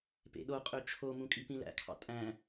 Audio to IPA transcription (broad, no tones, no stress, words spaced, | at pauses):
pḛɗoqʼø t͡ʃʰomũ kʼipĩlæ̰kʰɑ̰ tʼæ̃